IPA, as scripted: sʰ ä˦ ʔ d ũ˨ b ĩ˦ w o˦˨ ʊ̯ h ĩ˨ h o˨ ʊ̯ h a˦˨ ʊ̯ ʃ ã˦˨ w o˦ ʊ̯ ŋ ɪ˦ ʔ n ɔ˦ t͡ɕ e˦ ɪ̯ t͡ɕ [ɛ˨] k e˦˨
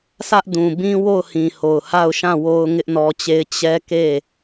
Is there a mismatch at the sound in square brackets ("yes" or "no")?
yes